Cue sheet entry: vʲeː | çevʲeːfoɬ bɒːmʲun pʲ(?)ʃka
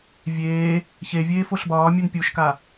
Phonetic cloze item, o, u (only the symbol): u